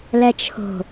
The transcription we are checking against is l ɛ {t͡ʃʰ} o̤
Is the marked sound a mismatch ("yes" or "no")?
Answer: no